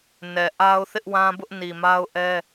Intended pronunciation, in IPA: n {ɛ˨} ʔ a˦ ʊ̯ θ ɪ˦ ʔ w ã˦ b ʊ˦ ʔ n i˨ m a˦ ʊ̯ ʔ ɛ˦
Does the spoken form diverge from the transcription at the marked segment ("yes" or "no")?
no